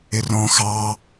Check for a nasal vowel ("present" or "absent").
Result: present